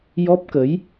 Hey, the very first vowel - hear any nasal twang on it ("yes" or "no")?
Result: no